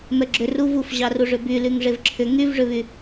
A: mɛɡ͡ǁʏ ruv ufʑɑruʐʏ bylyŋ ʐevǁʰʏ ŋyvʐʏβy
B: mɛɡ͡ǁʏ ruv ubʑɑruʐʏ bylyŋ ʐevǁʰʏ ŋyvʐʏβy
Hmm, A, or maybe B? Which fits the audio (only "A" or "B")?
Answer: A